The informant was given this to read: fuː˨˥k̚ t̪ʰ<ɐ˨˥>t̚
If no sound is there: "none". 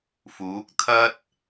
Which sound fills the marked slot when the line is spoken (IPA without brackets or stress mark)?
ɐ˥